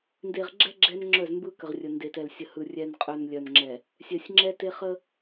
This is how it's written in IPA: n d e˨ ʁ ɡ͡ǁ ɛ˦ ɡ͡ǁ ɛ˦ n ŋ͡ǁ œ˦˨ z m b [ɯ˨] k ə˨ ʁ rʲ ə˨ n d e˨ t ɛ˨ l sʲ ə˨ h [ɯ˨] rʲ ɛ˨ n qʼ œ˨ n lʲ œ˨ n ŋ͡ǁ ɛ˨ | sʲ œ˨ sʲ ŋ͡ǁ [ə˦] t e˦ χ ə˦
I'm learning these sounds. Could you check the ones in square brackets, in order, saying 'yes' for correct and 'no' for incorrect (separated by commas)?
no, yes, no